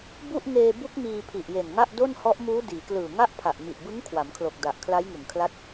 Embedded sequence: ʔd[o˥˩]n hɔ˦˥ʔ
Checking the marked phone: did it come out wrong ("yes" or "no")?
no